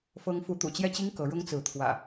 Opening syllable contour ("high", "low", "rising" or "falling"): high